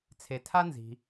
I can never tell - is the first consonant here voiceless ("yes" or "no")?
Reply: yes